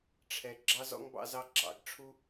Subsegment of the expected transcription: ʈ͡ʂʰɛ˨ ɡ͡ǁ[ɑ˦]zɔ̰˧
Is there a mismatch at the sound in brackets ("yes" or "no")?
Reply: yes